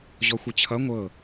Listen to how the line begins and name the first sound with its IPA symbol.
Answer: ʑ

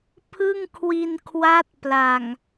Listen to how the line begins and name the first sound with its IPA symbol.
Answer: pʰ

